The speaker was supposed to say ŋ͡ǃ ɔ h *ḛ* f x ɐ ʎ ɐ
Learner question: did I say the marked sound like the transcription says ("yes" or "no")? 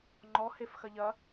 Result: no